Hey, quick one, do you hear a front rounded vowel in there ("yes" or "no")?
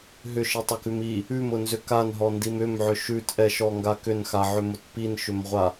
yes